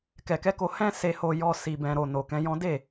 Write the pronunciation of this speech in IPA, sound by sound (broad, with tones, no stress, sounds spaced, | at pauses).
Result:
k ɛ˨ k ɛ˨˦ k o˧ h ɛ̃˦ s e˧ h o˧ j ɔ˧ s i˨ b ɛ̃˨ ɾ o˨ n o˨ k ɛ̃˨˦ j ɔ̃˦ d e˦˨